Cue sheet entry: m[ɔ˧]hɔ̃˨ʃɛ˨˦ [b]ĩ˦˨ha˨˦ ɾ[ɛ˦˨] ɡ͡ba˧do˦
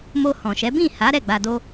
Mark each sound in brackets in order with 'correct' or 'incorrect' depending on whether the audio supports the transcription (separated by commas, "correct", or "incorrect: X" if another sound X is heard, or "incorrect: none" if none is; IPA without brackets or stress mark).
incorrect: o˧, correct, correct